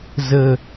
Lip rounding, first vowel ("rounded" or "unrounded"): unrounded